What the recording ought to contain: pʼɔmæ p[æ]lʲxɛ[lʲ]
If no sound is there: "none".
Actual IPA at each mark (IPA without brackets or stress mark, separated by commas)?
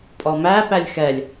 æ, lʲ